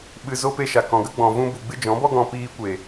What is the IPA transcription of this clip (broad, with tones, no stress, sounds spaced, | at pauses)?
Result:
ɓ ɨ˨ z o˧ p e˧ ʃ a˨ k ɔ̃˨ ɡ ə˦ ɡ͡b ɔ̃˨ v ũ˧ b u˨ ɡ͡b ɨ˦ d͡ʒ ɔ̃˨˦ b ɔ˦ ɡ ɔ̃˧ p iː˧ kʷ e˨